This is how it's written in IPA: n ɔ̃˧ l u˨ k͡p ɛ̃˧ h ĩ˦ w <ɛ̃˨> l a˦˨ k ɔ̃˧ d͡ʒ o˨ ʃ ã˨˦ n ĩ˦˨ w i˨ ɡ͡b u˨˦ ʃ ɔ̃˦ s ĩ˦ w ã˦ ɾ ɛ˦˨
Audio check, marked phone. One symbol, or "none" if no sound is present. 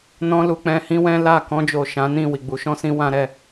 ɛ̃˦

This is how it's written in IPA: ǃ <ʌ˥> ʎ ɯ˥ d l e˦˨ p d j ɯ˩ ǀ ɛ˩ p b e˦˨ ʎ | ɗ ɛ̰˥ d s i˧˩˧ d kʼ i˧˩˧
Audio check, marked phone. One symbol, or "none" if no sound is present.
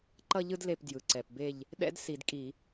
ʌ˥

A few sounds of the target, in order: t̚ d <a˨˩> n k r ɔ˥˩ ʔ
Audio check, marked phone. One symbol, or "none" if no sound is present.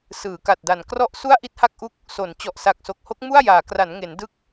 a˨˩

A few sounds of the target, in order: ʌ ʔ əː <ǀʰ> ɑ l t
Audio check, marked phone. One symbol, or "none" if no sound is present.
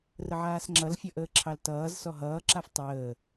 ǁʰ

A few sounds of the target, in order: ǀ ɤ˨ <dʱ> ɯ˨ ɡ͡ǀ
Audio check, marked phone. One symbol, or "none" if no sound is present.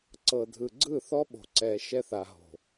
dʱ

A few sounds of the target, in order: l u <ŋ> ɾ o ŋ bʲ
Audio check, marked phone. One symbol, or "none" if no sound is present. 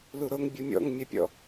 none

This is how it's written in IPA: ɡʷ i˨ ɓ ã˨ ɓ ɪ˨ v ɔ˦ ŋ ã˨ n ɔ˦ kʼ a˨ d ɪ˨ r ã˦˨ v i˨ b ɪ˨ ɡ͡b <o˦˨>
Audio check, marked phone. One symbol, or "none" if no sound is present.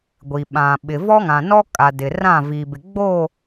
o˦˨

